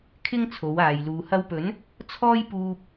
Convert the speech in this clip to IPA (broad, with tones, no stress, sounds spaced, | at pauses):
kʰ ɪ˥ ŋ t͡sʰ o˨˧ w aː˨ j l uː˨ h ɐ˧ w p ɵ˨˥ n | t͡sʰ ɔː˥ j p uː˧ p̚